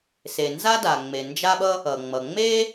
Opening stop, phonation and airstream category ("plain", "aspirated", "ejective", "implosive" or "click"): plain